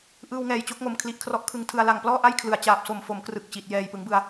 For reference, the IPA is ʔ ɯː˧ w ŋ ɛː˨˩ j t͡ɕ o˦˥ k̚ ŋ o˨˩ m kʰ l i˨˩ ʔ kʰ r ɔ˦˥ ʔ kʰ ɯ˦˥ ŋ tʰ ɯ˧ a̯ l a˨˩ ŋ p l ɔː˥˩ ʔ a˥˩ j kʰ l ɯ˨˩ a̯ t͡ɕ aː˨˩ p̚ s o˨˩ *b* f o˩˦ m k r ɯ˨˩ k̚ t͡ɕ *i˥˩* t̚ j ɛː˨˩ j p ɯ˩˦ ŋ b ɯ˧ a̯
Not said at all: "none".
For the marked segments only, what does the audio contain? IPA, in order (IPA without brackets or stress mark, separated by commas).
m, i˨˩